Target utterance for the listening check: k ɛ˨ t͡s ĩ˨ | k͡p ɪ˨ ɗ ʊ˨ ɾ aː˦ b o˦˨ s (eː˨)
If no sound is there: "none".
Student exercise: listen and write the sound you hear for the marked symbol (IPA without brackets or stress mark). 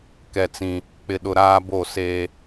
eː˦